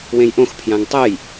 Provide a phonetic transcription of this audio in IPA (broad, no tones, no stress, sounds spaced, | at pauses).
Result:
w ẽ j ʔ õ x pʰ j ã ŋ tˤ ɛ j